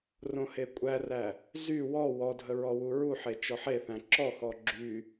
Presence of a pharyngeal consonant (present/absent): present